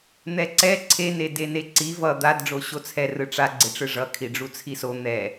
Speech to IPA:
n̪ɛǀɛ ǀʰe nedeneǀi vʌ d̪ad ɖ͡ʐoɕot͡sʰɛ rɯʈ͡ʂa ɡ͡ǀeʈ͡ʂɯʐʌ kʰiɖ͡ʐut͡sʰiso n̪ɛ

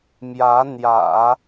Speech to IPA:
mjä˧˥ n̪jä̰˨˩˦

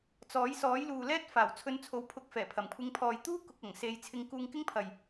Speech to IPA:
t͡sɔː˨˥j sɔː˨˥jluː˨lɛː˥t̚ faː˨˩wt͡sʰɵ˨˧nt͡sʰo˨˥w pʰʊ˧k̚ fɛː˨˩pʰɐ˨˩m kʷʰɪ˨˧ŋpʰɔː˨j t̪uː˥ kʊ˨k̚ɐ˨˩ŋ se˨˧j t͡sʰɪ˨˧ŋ kuː˧ŋkɪ˥ŋpʰɐ˨j

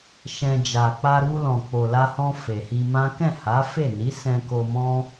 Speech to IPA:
ʃɛ̃˧ d͡ʒa˨k͡pa˧ɾu˧lɔ̃˨ k͡po˨la˧hɔ̃˧ fe˨hi˧mã˦ kɛ̃˦˨ha˨˦fe˦˨ni˨˦ sɛ̃˧ko˧mɔ̃˦

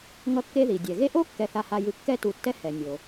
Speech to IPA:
ŋʌ˦kːe˦ði˩ dʲɛ˩ɣe˥ ʔo˥ kːɛ˨θa˨ha˨jɯ˨ kːɛ˦tu˨tːɛ˦ hɛ˩ nʲo˩

